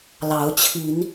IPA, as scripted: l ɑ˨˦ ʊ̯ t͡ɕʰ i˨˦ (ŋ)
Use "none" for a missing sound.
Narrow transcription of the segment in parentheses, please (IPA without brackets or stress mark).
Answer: n